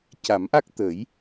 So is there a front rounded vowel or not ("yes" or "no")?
no